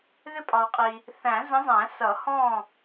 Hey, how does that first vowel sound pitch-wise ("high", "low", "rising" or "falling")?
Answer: falling